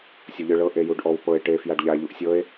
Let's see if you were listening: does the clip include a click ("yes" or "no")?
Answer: no